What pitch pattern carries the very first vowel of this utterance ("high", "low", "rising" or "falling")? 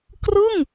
falling